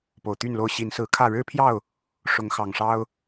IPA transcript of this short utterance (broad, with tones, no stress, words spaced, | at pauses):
po˨˩ʊ̯t̪y˥˨nlo˦ʊ̯ ɕi˨˦n sɹ̩˨˦kʰä˥˨ ɻɻ̩˦pʰjɑ˥˨ʊ̯ | ʂʊ˨˦ŋxɑ˨˩ŋʂɑ˦ʊ̯